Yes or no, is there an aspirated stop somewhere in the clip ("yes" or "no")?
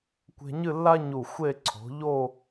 yes